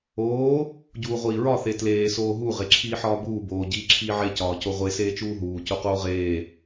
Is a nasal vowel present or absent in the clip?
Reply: absent